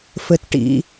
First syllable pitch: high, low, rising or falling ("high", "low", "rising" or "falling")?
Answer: low